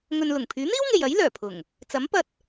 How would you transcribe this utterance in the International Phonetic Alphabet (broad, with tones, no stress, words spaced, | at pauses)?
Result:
ŋɵ˨nlʊ˨˩ŋ pʰyː˨˥n̪iː˥wŋe˨jɐ˨˥j lœː˨˩pʰʊ˨˩ŋ | t͡sɐ˨˥mpɐ˧t̚